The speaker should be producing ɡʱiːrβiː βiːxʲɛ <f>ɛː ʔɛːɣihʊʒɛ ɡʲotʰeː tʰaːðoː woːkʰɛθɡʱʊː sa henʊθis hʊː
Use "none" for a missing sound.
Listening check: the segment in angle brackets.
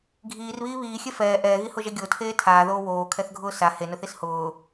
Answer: f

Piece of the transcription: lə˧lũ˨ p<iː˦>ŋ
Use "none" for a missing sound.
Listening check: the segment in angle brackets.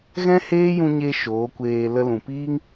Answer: iː˦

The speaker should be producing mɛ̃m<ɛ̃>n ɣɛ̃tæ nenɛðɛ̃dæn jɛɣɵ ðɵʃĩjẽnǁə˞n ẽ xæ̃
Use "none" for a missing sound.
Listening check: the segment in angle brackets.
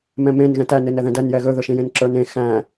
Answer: ẽ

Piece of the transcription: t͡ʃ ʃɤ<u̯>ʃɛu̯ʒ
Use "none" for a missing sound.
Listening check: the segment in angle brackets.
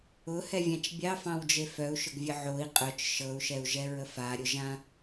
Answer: u̯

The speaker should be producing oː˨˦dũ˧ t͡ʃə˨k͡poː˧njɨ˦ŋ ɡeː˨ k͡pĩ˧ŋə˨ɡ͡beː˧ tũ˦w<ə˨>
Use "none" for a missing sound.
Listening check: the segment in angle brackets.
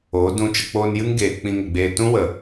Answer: ə˨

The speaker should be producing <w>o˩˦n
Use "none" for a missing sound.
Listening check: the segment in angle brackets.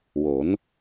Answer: w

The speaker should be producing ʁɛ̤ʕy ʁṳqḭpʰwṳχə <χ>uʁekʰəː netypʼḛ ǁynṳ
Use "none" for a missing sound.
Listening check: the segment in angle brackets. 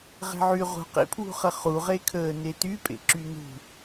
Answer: χ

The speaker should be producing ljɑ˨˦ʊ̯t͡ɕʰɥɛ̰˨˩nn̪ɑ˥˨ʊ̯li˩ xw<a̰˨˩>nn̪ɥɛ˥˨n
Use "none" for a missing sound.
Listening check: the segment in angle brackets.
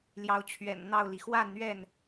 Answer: a˥˨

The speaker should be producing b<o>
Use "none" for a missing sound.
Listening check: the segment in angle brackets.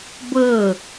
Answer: ɤ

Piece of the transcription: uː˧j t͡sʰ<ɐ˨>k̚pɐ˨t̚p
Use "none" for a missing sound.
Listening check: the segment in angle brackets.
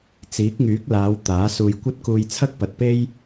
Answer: ɐ˥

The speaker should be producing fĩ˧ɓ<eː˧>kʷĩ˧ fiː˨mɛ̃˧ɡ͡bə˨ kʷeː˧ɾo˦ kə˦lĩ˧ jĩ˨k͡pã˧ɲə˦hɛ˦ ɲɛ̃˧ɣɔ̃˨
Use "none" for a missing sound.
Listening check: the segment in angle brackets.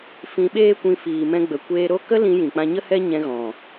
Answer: eː˦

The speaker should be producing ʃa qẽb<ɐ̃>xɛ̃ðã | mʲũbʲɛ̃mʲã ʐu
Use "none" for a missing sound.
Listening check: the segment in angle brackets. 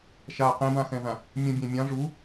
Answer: ã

